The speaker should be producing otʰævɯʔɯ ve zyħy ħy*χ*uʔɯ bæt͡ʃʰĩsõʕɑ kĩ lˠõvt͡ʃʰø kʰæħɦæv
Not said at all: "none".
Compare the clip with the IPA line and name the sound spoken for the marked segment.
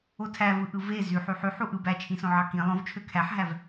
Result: ħ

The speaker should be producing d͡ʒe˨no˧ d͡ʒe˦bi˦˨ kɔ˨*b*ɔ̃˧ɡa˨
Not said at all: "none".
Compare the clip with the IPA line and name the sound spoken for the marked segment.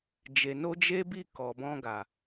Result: b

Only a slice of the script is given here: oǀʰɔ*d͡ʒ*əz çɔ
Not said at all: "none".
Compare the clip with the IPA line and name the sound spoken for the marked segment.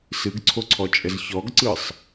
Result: t͡ʃʼ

